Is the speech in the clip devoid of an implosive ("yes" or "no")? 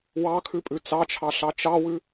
yes